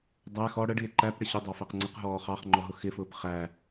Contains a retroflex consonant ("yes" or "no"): yes